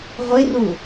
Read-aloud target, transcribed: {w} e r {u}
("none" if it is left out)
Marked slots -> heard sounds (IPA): ʁʷ, u

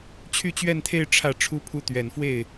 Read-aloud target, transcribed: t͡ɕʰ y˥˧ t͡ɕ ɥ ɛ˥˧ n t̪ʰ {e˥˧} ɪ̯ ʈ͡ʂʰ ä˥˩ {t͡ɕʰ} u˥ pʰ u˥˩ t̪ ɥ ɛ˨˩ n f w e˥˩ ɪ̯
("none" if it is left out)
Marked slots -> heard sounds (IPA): e˥˧, ʈ͡ʂʰ

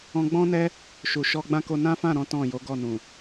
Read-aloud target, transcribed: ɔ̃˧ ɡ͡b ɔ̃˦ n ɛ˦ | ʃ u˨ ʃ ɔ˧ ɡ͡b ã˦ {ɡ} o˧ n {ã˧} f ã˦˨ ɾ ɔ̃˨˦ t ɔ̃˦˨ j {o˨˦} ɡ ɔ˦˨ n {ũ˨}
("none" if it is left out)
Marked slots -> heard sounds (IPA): k, ã˦, o˨˦, ũ˨

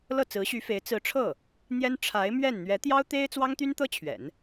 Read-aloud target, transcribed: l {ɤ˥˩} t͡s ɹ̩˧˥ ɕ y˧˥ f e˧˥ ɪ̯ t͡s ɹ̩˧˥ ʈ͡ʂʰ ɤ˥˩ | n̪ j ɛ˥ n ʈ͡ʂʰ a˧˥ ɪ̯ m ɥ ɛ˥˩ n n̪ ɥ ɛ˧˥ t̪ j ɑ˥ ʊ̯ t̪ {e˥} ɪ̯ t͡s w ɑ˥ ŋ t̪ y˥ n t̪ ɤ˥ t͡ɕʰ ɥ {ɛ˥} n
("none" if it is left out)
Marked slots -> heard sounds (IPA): ɤ˥˩, e˥, ɛ̰˨˩˦

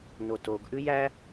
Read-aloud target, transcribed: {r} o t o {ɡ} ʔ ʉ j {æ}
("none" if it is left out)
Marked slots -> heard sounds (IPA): n, ɡ, æ

